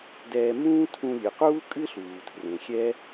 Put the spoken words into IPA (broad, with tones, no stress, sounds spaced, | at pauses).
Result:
d ɛː˧ m ũː˥ tʰ ũ˧ lʲ ɨ˩ q uː˥ kʼ ɨ˥ ɬ uː˩ tʰ r ẽ˩ xʲ ɛ˥